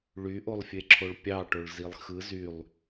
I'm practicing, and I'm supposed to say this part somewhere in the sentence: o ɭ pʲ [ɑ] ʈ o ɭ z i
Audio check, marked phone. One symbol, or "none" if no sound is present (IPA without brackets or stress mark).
ɑ